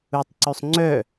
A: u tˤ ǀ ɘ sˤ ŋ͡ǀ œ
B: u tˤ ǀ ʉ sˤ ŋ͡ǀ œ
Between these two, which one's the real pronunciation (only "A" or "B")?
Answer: B